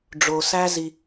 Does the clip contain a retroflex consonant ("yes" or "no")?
yes